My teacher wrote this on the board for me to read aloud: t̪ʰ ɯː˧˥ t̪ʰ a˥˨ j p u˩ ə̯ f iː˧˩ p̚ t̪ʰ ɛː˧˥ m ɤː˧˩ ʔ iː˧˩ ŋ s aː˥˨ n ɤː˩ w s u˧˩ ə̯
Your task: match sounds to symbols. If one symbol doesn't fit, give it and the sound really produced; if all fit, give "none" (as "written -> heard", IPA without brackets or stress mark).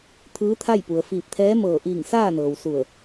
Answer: none